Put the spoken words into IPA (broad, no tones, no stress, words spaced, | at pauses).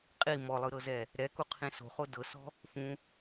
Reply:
qʼi mɔlˠɯɾɤzɛ | ɾɛkuqʰĩ so̤χo dɤsɔ̤ | fũ